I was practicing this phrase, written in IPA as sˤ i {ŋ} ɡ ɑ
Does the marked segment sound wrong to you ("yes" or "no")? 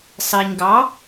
yes